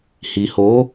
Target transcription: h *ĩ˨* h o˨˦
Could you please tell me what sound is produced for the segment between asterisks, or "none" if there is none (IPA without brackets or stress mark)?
i˨